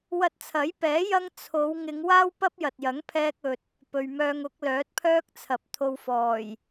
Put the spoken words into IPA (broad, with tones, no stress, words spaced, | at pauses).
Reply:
wɐ˧t̚t͡sʰɐ˨˥jpɛː˨˥ jɐ˥ŋ t͡sʰo˨˧w ŋɪ˨˧ŋ waː˥w pɐ˥p̚jɐ˨t̚jɐ˨˥ŋ pʰɛː˧k̚ɵ˨t̚ | pɵ˨ɥmœː˧ŋʊ˨˥k̚ lœː˨˥t̚pʰœː˥k̚t͡sʰɐ˨p̚ t̪ʰo˧wfɔː˨˩j